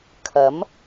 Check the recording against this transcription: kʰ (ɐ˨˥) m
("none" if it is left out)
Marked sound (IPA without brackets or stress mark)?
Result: ɐ˨˥